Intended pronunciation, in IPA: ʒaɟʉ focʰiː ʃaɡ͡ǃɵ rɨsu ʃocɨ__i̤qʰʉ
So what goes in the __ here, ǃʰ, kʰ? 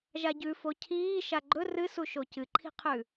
ǃʰ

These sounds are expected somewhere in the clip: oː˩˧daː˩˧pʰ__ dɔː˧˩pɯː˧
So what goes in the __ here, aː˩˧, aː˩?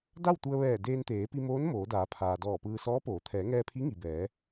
aː˩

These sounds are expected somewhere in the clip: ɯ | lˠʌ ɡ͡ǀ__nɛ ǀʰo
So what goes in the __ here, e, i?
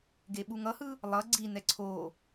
i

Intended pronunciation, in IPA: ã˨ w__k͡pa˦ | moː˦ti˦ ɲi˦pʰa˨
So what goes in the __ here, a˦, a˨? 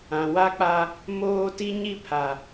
a˦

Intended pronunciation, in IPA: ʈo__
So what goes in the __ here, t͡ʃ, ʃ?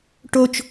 t͡ʃ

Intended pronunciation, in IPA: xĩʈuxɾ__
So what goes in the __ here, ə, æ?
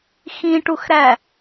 æ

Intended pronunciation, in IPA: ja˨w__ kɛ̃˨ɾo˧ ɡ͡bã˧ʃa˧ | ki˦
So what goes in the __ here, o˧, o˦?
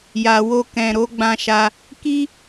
o˧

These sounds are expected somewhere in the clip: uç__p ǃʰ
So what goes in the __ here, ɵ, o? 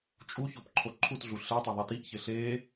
o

